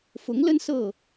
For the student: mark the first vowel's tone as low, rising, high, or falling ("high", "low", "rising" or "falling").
rising